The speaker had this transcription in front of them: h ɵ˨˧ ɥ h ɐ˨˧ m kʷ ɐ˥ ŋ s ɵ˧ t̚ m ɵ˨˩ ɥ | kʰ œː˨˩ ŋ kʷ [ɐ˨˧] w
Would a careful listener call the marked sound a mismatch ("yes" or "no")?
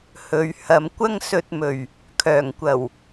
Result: yes